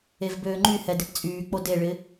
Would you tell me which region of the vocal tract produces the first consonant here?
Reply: lips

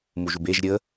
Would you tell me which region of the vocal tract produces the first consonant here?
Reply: lips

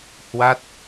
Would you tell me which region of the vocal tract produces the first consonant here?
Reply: throat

